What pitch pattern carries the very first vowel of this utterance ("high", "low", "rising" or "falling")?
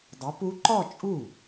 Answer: rising